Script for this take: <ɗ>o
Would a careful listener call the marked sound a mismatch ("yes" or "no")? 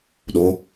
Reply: no